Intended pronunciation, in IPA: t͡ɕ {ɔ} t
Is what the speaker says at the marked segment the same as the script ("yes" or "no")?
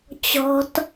no